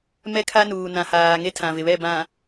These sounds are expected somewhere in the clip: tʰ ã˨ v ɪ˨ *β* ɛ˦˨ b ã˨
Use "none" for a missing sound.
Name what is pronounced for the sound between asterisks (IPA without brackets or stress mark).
β